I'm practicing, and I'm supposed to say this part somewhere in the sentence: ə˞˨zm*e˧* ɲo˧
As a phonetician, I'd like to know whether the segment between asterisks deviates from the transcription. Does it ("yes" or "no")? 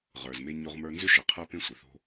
no